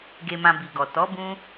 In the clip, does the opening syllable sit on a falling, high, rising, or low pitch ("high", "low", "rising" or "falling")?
low